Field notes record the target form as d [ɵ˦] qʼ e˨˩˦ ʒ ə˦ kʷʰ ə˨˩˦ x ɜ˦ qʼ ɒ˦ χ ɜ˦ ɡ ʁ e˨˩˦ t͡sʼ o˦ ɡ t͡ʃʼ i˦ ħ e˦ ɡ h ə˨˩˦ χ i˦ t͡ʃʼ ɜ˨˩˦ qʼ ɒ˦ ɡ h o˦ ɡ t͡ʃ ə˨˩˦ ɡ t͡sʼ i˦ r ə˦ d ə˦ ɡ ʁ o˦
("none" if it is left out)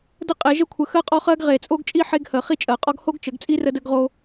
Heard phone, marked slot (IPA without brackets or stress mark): ə˦